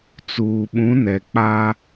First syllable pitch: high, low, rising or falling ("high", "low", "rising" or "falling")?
low